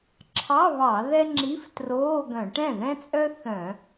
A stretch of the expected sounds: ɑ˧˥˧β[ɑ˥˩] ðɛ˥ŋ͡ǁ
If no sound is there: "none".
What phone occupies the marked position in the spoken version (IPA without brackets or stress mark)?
ɑ˧˩˧